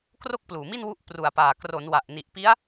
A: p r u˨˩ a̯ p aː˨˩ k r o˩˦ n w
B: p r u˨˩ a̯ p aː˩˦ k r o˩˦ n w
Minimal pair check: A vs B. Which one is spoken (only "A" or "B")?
A